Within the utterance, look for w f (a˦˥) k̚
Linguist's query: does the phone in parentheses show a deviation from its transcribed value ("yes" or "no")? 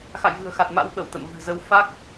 no